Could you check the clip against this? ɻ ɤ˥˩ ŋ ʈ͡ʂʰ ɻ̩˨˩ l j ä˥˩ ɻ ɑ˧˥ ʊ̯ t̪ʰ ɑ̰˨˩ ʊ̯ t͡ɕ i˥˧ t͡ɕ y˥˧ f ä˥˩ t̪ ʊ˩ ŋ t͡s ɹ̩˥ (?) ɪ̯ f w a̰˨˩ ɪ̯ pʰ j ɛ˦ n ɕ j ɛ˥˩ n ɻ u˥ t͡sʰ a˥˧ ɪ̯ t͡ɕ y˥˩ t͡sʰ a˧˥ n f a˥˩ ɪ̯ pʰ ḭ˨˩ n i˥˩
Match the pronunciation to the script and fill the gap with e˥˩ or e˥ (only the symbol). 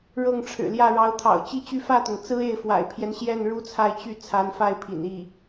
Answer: e˥˩